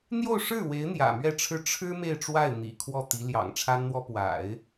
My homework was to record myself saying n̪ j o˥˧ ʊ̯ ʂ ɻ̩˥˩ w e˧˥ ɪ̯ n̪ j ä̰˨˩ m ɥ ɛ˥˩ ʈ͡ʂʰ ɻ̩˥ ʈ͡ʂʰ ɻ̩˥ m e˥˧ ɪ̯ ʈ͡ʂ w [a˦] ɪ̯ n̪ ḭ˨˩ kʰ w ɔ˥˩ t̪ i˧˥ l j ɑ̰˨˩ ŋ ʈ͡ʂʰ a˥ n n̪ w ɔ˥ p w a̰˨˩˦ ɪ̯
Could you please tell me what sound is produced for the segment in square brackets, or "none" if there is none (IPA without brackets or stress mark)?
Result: a˥˩